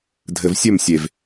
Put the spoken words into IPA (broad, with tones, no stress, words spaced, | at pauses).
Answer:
dʱɘ˨vsʲɵ˦˨msʲe˨v